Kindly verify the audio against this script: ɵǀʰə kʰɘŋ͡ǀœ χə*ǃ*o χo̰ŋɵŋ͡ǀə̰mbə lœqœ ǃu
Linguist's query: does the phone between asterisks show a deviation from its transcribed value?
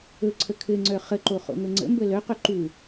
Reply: no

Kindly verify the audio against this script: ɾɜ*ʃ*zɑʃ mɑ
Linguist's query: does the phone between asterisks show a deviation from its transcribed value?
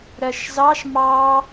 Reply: no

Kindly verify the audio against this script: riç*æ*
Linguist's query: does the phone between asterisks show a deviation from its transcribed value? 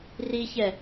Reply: yes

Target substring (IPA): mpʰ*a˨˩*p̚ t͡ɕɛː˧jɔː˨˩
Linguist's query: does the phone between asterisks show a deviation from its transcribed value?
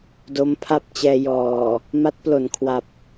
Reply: yes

